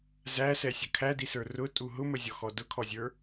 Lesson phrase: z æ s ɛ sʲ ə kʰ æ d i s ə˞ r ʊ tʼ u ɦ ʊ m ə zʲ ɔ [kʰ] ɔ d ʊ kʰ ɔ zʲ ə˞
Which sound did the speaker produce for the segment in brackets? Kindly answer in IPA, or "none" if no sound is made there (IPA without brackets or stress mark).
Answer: x